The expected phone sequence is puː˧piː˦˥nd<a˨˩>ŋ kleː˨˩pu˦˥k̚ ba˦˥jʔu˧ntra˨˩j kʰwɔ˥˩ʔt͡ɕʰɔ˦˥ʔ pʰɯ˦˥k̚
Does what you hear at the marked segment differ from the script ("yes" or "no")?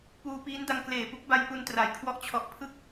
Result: yes